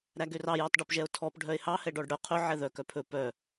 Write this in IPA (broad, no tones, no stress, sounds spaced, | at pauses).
ɾ æ ɡ ø r ɑ j ɔ tˤ ɖ ɵ p ʒ ɛ o̯ tʰ ɔ p ɖʱ œ e̯ h ɑ h ɛ ɖ ɔ ɖ ɽ œ qʰ ɵ ʕ ɛ ð œ k œ pʰ ɵ p œ